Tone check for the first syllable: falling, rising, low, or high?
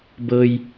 high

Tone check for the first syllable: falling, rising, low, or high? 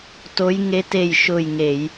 rising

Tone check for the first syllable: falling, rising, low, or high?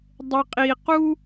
low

